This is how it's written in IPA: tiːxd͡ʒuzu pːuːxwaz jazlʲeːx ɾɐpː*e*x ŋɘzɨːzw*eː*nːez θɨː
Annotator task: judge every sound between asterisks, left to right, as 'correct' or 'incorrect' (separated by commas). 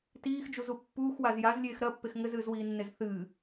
correct, incorrect